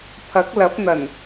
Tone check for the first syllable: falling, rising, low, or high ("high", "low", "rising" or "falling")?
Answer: rising